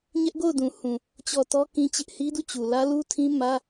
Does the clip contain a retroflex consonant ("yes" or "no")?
no